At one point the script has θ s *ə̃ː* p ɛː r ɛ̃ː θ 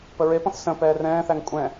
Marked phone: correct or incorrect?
incorrect